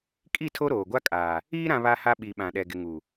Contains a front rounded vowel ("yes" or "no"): no